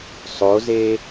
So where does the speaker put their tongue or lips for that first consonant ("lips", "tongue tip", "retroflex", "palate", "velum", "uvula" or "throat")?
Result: tongue tip